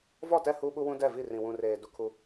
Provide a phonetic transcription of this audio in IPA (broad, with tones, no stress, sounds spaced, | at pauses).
v ɔ˦˨ t ɛ˦˨ h uː˦ ɓ u˦ w ũ˦ d ɛ˦˨ v i˦˨ r ĩ˨ w ũ˨ r eː˨ d u˦ kʰ u˦